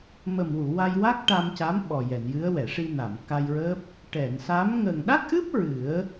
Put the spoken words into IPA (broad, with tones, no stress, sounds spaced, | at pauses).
m ə˨˩ m w u˨˩˨ w a˧ j w a˦˥ k̚ ʈ a˧ m c a˧˥ m ɓ ɔ˨˩ j ɛ˨˩˨ n j ɨ˧˥ ə̯ w ɛ˨˩˨ ʂ i˧ n a˨˩˨ m k a˧ j ɹ əː˦˥ p̚ | ʈ ɛ˨˩˨ n s a˧˥ m ŋ ə˨˩ ŋ ɗ a˦˥ k̚ ʔ ɨ˦˥ p̚ ɹ ɨ˨˩˦ ə̯